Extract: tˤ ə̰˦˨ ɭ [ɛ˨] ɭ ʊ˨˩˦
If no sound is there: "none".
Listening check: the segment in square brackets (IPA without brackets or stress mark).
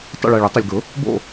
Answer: ɛ˨